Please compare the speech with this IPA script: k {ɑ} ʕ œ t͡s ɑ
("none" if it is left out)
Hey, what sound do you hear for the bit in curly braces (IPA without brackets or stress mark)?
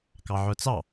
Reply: ɑ